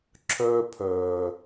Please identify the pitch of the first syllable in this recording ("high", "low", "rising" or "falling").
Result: high